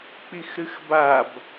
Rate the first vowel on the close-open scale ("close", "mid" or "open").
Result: close